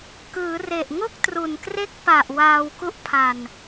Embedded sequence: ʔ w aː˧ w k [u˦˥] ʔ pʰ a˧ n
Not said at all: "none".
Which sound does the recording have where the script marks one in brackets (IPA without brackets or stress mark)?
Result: u˦˥